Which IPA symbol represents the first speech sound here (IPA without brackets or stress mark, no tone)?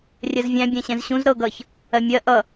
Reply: rʲ